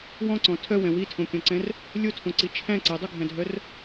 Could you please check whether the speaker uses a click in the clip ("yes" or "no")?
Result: yes